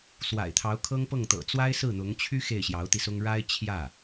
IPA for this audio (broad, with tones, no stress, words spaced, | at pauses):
swa̰˨˩ɪ̯t̪ʰɑ˧˥ʊ̯kʰɤ˥ŋ pɤ˥˩ŋt̪ɤ̰˨˩ t͡swa˥ɪ̯sɹ̩˥˩ n̪ʊ˧˥ŋ t͡ɕʰy˥ xe˥˩ɪ̯ɕjɑ˧˥ʊ̯t̪i˧sʊ˥ŋ ɻa˥ɪ̯t͡ɕʰjä˥˩